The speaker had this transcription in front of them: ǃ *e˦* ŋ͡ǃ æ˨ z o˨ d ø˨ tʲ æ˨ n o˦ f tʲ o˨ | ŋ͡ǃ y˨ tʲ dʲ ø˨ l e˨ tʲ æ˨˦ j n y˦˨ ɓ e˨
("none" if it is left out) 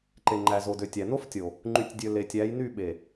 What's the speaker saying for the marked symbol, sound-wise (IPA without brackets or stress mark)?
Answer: e˨